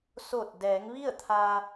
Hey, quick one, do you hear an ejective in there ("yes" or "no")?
no